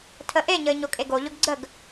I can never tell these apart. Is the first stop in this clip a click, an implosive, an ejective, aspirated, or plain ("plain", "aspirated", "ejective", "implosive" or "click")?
aspirated